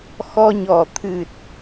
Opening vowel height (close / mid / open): mid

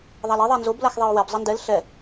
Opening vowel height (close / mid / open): open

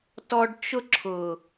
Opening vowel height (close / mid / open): mid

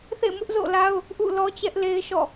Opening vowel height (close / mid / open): mid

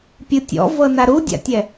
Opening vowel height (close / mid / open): close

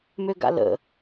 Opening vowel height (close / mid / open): mid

